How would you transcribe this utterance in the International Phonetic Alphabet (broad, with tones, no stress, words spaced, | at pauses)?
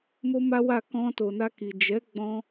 mo˦ma˦wa˦˨ kɔ̃˧to˨na˧ ki˨ d͡ʒɛ˨˦ ɡ͡bɔ̃˦